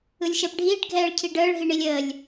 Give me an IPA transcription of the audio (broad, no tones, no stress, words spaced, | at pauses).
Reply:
ɯlʲʃɛpɖʱiːɖ ɡʱɛːɭcʰiɖəːɭ ɦiɳilʲəːlʲ